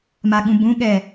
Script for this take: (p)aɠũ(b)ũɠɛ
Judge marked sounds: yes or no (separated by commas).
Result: no, yes